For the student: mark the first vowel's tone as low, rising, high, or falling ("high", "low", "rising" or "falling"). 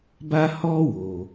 high